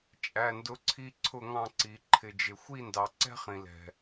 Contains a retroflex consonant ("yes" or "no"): no